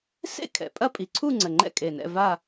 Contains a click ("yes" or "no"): yes